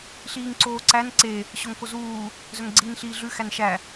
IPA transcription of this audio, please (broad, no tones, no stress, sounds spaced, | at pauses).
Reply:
ɬ iː ŋ ǀ oː ǀ æ n ǀ e | ɕ o ŋ k o z uː | z œ ŋ ɡ͡ǀ iː n ɬ iː ɮ ʉ x æ n ʃ æ